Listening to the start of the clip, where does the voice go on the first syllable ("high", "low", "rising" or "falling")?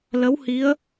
rising